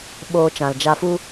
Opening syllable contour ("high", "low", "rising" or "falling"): low